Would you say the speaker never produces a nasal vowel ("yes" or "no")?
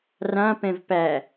no